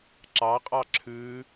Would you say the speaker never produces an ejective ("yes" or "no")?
no